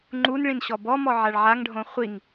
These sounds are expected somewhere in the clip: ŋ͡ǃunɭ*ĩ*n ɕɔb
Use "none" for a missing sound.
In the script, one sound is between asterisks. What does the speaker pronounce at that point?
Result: ĩ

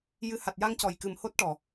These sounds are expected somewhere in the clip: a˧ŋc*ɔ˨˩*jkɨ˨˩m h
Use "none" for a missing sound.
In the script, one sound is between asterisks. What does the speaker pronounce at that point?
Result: ɔ˨˩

